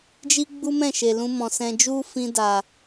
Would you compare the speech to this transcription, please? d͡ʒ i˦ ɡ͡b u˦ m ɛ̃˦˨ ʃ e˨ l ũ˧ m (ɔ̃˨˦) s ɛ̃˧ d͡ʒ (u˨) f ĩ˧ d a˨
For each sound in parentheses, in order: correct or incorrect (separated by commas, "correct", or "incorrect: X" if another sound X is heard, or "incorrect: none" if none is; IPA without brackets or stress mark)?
incorrect: ɔ̃˨, incorrect: u˦